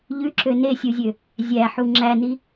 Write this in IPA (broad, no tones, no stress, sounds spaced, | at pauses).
ʎ ʉ ǁ ø n e sʲ u zʲ ø | zʲ æ ħ u ŋ͡ǁ æ n i